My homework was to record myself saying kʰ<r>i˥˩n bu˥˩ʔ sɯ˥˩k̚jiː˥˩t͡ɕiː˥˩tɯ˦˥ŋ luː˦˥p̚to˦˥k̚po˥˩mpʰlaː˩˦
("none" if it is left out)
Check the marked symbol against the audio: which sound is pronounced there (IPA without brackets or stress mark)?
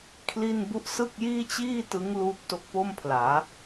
l